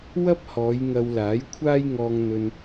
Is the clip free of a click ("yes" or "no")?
yes